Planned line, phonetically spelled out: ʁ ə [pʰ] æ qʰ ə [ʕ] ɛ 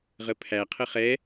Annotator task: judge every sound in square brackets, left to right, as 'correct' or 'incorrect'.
correct, incorrect: χ

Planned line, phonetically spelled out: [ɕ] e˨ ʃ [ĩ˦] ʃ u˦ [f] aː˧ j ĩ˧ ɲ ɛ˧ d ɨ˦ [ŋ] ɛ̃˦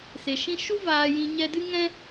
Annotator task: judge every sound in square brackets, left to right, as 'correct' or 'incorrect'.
incorrect: s, correct, incorrect: v, correct

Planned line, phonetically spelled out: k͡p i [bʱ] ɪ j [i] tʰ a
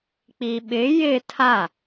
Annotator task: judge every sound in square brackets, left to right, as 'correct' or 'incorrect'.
incorrect: ɓ, incorrect: ɪ

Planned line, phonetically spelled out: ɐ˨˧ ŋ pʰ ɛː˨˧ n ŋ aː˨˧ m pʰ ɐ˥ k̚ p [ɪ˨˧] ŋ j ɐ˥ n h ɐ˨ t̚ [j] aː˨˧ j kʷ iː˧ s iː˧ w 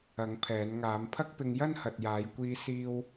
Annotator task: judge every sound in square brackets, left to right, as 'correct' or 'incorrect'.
incorrect: ɪ˧, correct

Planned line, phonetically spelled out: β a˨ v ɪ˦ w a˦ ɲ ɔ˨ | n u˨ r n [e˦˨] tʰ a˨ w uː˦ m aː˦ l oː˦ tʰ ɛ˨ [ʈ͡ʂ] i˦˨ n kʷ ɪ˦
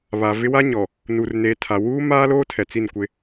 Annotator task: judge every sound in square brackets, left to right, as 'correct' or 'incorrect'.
incorrect: e˨, incorrect: t͡s

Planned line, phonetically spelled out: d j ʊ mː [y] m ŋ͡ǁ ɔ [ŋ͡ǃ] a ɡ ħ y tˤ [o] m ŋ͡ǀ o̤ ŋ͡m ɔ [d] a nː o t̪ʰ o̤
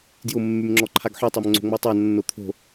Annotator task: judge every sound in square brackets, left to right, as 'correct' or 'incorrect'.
correct, incorrect: ǃʰ, correct, incorrect: tˤ

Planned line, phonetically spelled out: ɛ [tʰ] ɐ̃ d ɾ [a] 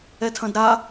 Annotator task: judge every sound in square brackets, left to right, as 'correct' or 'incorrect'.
correct, correct

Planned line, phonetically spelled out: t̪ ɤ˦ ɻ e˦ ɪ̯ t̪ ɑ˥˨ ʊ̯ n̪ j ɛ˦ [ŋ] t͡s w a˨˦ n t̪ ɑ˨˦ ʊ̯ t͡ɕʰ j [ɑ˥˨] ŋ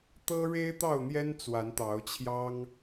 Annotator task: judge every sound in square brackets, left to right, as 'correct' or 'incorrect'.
incorrect: n, incorrect: ɑ˦

